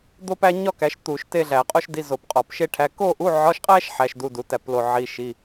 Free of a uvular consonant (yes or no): no